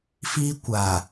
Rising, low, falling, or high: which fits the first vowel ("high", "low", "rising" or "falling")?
high